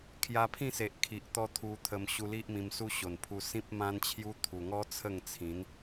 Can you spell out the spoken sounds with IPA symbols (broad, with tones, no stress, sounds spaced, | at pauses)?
kʰ j a˧ pʰ ĩ˥˧ s e˨ ʔ kʰ i˨ ʔ t̪ ɔ˦ t̪ʰ u˧ t̪ʰ ə˧ m ɕ u˧ l i˦ ʔ m ĩ˧ m s u˦ ɕ o˨˩ n pʰ u˧ s ĩ˦ p̚ m ã˦ n t͡ɕʰ j u˦ t̪ʰ u˨˩ ŋ ɔ˦ t͡sʰ ə˥˧ ŋ t͡sʰ ĩ˨˦ n